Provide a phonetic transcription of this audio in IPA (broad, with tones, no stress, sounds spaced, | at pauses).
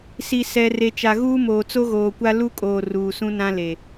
s i˨ s ɛ˨ r e˨ t͡ʃ a˨ ɣ uː˦ m oː˨ t͡s o˦ ɣ oː˨ kʷ a˦ l u˦ kʼ oː˨ r uː˨ s ũ˦ n ã˦ l e˨